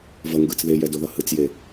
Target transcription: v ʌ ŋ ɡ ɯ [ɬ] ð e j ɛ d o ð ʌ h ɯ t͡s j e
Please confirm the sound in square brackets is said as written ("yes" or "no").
no